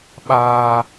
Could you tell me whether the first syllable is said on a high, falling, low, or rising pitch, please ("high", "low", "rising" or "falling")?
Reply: high